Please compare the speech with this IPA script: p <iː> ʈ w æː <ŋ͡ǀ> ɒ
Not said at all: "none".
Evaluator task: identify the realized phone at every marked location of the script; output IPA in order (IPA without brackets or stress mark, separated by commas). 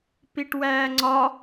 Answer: i, ŋ͡ǀ